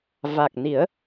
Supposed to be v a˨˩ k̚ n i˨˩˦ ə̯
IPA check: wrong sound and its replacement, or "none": none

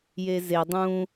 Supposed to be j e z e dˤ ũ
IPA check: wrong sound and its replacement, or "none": none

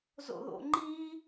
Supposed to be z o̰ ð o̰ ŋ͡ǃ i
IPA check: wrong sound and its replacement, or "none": none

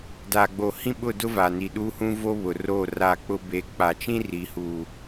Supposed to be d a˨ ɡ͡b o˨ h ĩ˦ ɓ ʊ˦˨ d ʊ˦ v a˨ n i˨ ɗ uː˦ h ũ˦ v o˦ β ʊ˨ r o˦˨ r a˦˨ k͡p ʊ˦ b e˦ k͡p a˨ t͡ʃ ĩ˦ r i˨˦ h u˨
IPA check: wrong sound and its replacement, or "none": none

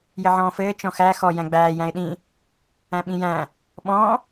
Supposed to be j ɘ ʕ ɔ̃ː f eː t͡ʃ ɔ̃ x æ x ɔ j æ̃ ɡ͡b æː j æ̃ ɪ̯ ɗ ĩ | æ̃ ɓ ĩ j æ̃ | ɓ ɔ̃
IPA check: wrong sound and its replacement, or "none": eː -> ɘː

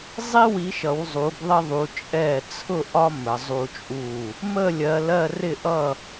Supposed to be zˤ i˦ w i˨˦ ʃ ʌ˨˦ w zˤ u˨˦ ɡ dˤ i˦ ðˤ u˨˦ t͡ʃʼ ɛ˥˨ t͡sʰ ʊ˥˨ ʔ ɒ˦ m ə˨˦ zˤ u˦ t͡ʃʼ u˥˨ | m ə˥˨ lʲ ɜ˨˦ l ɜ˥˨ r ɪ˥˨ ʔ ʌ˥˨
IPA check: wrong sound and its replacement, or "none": dˤ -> ðˤ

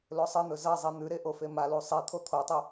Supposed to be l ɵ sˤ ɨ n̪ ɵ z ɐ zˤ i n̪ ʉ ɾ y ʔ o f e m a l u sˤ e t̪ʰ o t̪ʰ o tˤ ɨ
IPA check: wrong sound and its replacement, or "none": y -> e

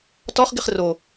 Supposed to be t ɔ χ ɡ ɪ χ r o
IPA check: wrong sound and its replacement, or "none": none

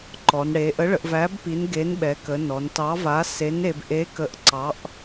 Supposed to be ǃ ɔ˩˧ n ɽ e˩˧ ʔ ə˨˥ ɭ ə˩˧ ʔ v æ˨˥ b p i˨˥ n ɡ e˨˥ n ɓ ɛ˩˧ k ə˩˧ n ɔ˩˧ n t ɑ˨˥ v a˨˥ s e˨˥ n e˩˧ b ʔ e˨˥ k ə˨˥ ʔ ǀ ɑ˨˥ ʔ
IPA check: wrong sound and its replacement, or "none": none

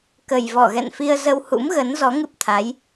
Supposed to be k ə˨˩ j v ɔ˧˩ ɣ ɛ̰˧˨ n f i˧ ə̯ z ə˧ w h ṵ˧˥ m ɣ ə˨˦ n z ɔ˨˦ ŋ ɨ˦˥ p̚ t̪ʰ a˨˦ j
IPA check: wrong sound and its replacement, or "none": none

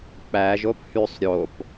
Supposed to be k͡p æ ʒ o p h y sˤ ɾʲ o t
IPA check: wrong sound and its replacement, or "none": t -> p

